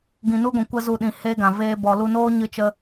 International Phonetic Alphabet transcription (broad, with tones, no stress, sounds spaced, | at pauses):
ɡ ĩ˨ n u˦ ɡʷ ɛ̃˨ kʷ ə˦ z u˧ ɗ ĩ˨ h e˦ ɡ ã˨ v eː˦ b ɔ˨ l u˧ n oː˦ ɲ ɨ˦ t͡ʃ ə˦